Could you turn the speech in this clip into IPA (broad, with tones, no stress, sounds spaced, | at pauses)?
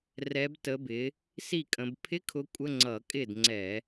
r ɛ˨˦ b t ə˨˦ b ɪ˨˦ | s i˥˩ kʼ ə̃˨˦ b pʰ ɪ˧˥˧ kʰ ʊ˨˦ kʷʼ ə˧˥˧ ŋ͡ǀ ʌ˧˩˧ kʼ ɪ˥˩ d ŋ͡ǀ ɛ˧˩˧